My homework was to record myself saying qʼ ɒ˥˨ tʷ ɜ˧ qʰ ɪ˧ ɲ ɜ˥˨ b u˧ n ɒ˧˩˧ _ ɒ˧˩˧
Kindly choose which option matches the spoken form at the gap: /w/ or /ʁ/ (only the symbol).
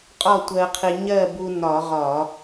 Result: ʁ